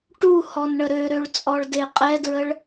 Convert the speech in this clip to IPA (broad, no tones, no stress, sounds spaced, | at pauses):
ʈ u h ɔ n ɳ ə ɾ ø ɾ ø ɭ t͡sʼ ɔ ɭ d e qʼ ɛ d ɹ ə ɭ